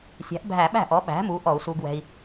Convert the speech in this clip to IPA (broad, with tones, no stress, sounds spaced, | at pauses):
sʲ æ̤˩˥ ʔ bʱ æ˧˩˧ ɓ æ̤˥˩ ʔ ɔ˩˥ ɓ æ̤˩˥ m uː˩˥ ʔ ɔ˧˩˧ u̯ s uː˧ ɡ w ɛ̤˧ i̯